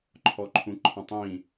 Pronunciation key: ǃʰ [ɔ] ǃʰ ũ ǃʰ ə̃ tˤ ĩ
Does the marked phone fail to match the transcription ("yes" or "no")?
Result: no